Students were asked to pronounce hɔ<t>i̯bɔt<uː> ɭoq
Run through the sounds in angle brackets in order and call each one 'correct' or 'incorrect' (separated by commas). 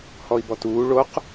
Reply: incorrect, correct